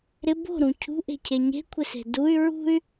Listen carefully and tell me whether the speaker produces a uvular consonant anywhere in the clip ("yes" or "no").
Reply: no